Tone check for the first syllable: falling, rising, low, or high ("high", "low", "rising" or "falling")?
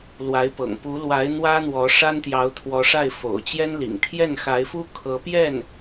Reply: rising